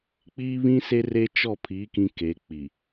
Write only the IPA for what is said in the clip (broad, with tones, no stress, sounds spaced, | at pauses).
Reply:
k͡p iː˦ β ĩ˦ s e˦ r e˦ t͡ʃ ɔ˦˨ pʰ i˨˦ k ĩ˦ k e˨˦ k͡p i˨